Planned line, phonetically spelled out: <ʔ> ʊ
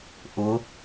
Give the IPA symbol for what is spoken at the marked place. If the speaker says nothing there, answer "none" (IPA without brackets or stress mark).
ʔ